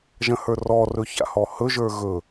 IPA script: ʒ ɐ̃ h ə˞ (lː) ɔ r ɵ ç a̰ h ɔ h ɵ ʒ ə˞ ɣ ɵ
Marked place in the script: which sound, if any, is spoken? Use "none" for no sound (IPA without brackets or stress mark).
r